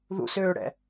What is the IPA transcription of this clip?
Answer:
ð ṵ s øː ɽ ɛ̰

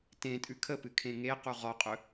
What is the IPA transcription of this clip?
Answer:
t ẽ tʼ ʉ kʰ ə p ɨ kʰ ẽ ŋ e q u ʁ ɔ qʼ ɵ

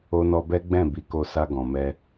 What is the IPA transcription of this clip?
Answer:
o˧ n ɔ˧ b ɛ˦ ɡ͡b ɛ̃˦˨ b i˨˦ k o˧ s a˧ ɡ ɔ̃˨ m ɛ˧

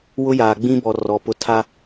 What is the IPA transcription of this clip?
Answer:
w ʊ˦ j aː˨ ɡ͡b ĩ˦ b ɔ˨ r ɔ˨ p ʊ˦ tʰ a˦

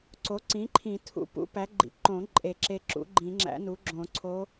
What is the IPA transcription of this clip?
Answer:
ǀ o˩˥ ǀ ĩ˩˥ ǃʰ ĩ˨˩˦ tʰ ṵ˧ p ṵ˧˥ p æ˩˥ ɡ͡ǃ ḭ˩˥ ǃ õ˨˩˦ ǃʼ e˨˩˦ ǁ e˧ ǁ ṵ˩˥ ɡ͡ǃ ĩ˨˩˦ ŋ͡ǁ æ̰˧˥ n u˩˥ ɡ͡ǁ õ˨˩˦ ǀʰ o˧˥

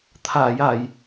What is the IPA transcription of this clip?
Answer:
t̪ʰ aː˨˩˨ j a˨˩˨ j

